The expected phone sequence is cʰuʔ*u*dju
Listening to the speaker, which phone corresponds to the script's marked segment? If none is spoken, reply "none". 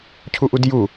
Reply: u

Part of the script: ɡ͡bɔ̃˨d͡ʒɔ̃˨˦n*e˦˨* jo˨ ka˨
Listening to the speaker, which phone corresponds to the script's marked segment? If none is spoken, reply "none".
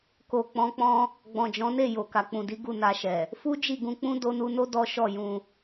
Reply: e˦˨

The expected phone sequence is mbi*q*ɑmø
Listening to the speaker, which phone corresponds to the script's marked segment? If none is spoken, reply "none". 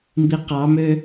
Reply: q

